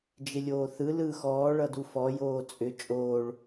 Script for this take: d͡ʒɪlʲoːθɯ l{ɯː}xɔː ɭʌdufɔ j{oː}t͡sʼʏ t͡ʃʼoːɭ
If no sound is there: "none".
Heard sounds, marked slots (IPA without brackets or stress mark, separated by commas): ɯː, oː